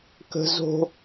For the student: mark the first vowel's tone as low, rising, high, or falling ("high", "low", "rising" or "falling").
high